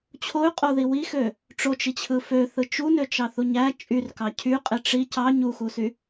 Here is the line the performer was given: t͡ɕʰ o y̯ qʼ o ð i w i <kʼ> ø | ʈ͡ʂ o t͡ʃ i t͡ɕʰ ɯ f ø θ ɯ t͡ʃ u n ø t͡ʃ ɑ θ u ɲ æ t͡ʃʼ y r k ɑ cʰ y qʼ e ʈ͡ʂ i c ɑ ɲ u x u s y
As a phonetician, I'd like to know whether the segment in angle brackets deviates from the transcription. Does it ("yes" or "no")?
yes